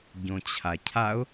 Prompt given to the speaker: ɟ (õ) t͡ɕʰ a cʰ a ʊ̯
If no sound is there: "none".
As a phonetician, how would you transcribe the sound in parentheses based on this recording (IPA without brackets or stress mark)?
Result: õ